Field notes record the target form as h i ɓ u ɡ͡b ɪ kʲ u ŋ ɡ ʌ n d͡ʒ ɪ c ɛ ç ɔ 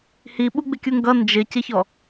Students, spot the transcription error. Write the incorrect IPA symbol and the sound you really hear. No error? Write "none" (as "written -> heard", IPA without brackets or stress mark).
ɛ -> ɪ